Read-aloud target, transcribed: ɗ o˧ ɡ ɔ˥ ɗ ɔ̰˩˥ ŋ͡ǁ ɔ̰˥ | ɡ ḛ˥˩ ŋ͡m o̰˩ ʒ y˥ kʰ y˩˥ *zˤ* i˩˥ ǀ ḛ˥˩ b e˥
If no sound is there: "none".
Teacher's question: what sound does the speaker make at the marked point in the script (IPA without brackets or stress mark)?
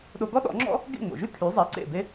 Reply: zˤ